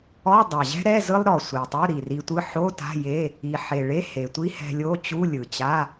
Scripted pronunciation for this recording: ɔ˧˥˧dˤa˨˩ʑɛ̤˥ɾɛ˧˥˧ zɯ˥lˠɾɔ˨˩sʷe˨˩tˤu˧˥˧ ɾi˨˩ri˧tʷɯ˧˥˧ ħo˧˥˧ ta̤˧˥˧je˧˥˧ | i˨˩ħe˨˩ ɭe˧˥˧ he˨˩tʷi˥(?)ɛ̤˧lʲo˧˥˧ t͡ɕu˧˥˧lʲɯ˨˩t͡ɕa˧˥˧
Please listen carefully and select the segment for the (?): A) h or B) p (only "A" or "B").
A